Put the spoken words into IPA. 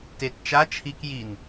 t e t t͡ʃ a t͡ʃʰ i k j i n

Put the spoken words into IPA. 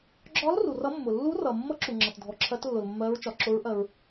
ɡ͡ǁ ɒ˧˥ l r u˩ r ʌ˧˥ mː ʊ˩ lː u˧˥ r ʌ˩ mː ʌ˧˥ ǁ u˩ ŋ͡ǁ ʌ˩ t dʱ ɔ˩ ǁʰ ɜ˧˥ t lː ʊ˩ l mː ɜ˧˥ ɹ t͡ʃ ɒ˩ ǁ ʊ˧˥ ɹ ʔ ɜ˩ ɹ

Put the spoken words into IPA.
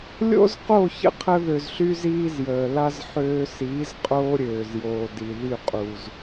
lʲ o̰˦ z q o˦˨ ç ə̰˦ qʰ ə˧ ð ø˨ z ɬ y˧ z iː˦ z j əː˨ l a˦ z ħ øː˧ s iː˨˦ z qʼ oː˦ ɾʲ øː˨ z j oː˨ d i˨ ð y˦˨ qʼ u˨ z

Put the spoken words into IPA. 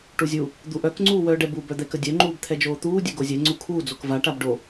ʈ u zʲ u | d̪ u ʔ œ k ŋ͡ǀ uː w œː ɖ ɛ b u b œ d̪ ɛ k ə dʲ œ ŋ͡ǃ uː b t̪ʰ ɛ d͡ʒ oː t̪ uː dʲ ɛ ɡ o zʲ ɛ ŋ͡ǀ u kʰ uː d͡z o k v a ʈ a b ɖ o

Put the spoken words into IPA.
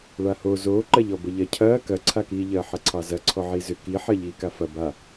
ɭ a h o z oː ǃ ɐ ʎ ɔ b ə ʎ ɐ cʰ ɐː k ɐ ǀʰ a k iː ʎ ɐː ħ ɐ ǀʰ ɑ z ɐ ǀʰ ɔ ʕ i z ʏ k i ħ ɐ ʎ iː k a f ɐ b a

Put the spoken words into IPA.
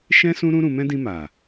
ʃ ɛ̃˦ s ũ˦ ɾ ũ˦ ɾ ũ˧ m ɛ̃˦ d ĩ˧ m a˨

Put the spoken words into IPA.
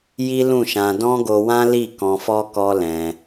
j i˦ l ũ˦˨ ʃ ã˧ d ɔ̃˦ ɡ o˧ w ã˦ l i˦˨ k ɔ̃˧ f ɔ˦ k ɔ˦ l ɛ̃˧

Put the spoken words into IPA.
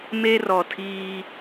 m e˦ r ɔ˨ tʰ iː˦

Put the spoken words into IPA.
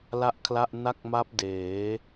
l a˥˩ ʔ kʰ l a˥˩ ʔ n a˥˩ k̚ m a˦˥ p̚ d eː˩˦

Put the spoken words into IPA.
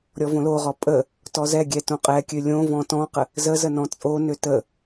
ɾʲ ɔ v õ l o ʁ ɔ pʼ ə | t ɔ z ɛ ɡʲ ɛ t õ qʼ ɛ kʲ ø lʲ õ v ɔ̃ t ɔ̃ q ə | z ə z ə n ɔ̃ t͡sʼ o n ø t ə

